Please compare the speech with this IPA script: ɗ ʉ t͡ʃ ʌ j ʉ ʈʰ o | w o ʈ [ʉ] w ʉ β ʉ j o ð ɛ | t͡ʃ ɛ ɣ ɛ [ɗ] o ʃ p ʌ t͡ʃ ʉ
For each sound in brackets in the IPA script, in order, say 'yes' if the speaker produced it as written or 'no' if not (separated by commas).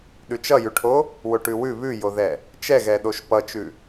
yes, yes